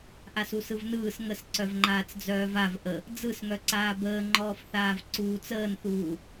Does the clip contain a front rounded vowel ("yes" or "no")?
yes